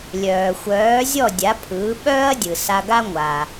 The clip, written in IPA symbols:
lʲœː˩xʷœː˩˥ zʲɔ˥˩dʲa˩˥pʰɯː˩˥ ɓœː˥ɐ̯dʲɯ˩ sa˧ɡa˥ ŋʷa˩

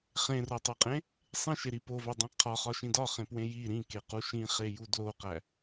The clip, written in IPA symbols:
χẽrotˤoqʼẽ | sˤẽʃeɾi povædˤẽ qʰɒχɒʃĩ dɒχẽpwẽ ji ɾĩkequ ʃĩχeju dloqæ

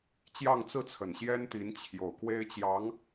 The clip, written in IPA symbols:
t͡ɕjɑ˥˧ŋt͡sɹ̩˥˩t͡sʰə˨˩n ɕjɛ˥nt̪i˧˥nt͡ɕʰjo˨˩ʊ̯ kwe˥ɪ̯t͡ɕjɑ˧˥ŋ

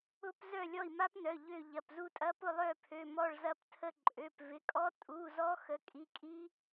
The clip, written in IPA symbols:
ʊ˦˥pzœ˦˨ lʲɔ˦˨i̯ma˦˥pnœ˩˧˩ ʎø˦˨ʎɐ˩˧˩pzu˦˨tʼɐ˦˥ pʊ˦˨lˠœ˦˨pʰø˩˧˩ mɔ˦˨ɭzɐ˦˥ptʰə˦˨ ǃʼø˩˧˩pvɪ˩˧˩kʼɔ˦˥ tʼu˩˧˩zɔ˦˥ xə˩˧˩kʼi˩˧˩kʼi˦˥

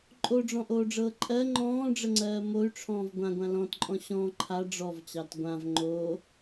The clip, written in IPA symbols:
ǃʼoɖ͡ʐɔ̃ʔoːɖ͡ʐɤː ǃʼɜ ŋ͡ǃɔ̃ːɖ͡ʐəŋ͡ǀɜː moy̯ʈ͡ʂʰɔ̃ːv ɡʷãɡʷã lɔ̃tǃʼɔ̃ ɕɔ̃ ǃʰa ɖ͡ʐɔvt͡ɕɑt ɡʷãv ŋ͡ǃoː

